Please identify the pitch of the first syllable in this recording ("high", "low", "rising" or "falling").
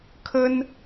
high